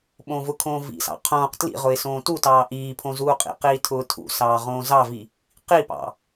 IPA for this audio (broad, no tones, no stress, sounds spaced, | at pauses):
ɓ õː v ʊ kʰ õː v ḭ s ɑ̰ qʰ õː q t l ḭ ʁ ʊ ɪ̯ s õː t u t ɑː ʔ iː pʰ õ z uː qʼ ḭ q iː tʰ ʊː tʰ ṵ s ɑː ʁ õː z ɑ v i | q i p ɑ̰